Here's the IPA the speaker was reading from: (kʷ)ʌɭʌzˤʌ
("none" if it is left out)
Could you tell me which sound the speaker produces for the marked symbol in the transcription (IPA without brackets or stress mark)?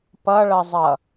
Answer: p